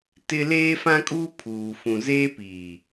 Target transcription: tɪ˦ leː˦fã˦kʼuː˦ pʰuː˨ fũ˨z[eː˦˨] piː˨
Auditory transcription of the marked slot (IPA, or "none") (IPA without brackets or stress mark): eː˦